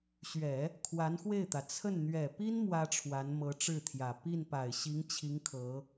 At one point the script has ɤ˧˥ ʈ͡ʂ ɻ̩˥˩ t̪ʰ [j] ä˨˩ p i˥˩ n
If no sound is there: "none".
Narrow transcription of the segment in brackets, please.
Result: j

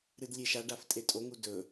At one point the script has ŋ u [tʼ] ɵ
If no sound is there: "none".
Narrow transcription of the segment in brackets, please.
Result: d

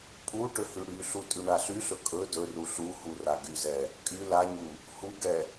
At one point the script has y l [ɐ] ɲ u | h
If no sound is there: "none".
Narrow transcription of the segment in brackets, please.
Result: a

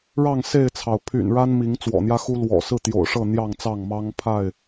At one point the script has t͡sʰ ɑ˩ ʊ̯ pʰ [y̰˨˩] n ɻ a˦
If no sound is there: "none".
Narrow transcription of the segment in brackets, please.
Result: y̰˨˩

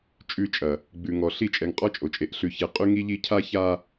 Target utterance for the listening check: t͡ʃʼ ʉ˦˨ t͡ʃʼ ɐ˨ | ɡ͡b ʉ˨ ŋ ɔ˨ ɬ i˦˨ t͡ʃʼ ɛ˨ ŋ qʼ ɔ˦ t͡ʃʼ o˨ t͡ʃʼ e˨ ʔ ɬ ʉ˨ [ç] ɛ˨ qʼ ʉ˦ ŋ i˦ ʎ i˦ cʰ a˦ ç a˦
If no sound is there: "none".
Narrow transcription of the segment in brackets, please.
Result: ç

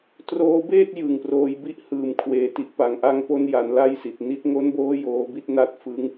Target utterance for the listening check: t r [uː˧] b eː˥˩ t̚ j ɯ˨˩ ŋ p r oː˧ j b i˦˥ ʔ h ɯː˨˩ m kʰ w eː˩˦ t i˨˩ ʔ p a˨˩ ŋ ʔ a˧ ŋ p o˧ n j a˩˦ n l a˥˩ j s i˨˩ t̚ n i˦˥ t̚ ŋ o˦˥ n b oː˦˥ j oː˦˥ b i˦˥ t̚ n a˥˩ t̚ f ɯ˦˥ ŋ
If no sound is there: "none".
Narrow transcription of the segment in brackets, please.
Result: oː˧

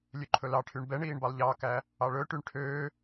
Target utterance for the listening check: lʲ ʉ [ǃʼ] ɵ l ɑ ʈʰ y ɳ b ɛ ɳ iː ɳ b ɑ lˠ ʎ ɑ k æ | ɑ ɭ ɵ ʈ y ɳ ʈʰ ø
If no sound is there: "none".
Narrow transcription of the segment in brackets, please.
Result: ǃʰ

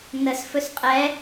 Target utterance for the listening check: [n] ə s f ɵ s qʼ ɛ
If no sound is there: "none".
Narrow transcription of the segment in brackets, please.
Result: n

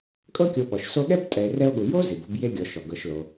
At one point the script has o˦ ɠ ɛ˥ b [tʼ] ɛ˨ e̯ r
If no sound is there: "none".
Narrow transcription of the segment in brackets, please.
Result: tʼ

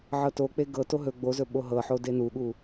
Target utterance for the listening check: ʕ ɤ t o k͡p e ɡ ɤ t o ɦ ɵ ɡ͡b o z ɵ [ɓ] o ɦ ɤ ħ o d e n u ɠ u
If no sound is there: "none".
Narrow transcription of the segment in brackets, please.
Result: ɓ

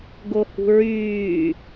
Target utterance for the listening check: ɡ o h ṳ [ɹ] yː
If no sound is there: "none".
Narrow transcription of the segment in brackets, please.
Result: ɹ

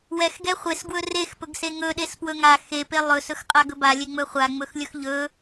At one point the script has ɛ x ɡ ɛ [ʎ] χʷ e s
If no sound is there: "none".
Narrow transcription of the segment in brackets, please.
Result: none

